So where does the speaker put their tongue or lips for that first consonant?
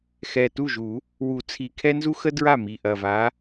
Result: velum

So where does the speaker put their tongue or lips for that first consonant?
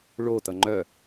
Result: retroflex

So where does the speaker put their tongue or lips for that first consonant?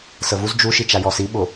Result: tongue tip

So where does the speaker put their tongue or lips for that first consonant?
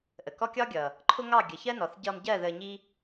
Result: throat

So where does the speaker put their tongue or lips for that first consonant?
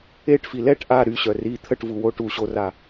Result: retroflex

